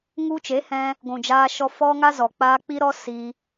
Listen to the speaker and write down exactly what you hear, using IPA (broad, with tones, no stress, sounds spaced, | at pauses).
ŋ u˧ t͡ʃ e˨˦ h ɛ̃˧ | ɡʷ ũ˨ d͡ʒ aː˧ ʃ ɔ˧ f ɔ˦ ŋ a˦ z ɔ˨ k͡p aː˧ k͡p i˦ ɾ ɔ˦ s i˧